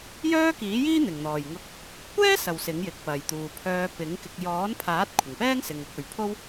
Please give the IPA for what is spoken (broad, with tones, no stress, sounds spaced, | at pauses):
j œː˥ k iː˨˥ j iː˥ n̪ ɪ˨˩ ŋ n̪ ɔː˨˩ j ŋ ʊ˧ k̚ | kʷ ɛː˥ s ɐ˨˩ w s ɪ˨˥ ŋ j ɪ˨˥ k̚ p ɐ˨ j t̪ uː˨ pʰ œː˧ p ɪ˨˥ ŋ k ɪ˧ k̚ j ɔː˨˥ n pʰ aː˨˥ t̚ kʷʰ ɪ˨˩ ŋ p ɛː˥ ŋ s ɪ˨ ŋ ʊ˧ k̚ ɵ˨˧ ɥ pʰ o˥ w